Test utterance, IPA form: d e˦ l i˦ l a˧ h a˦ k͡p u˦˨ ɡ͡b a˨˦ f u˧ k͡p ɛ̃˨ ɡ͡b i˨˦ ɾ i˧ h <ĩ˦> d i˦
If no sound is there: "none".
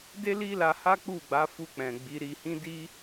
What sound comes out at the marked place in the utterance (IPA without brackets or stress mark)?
ĩ˦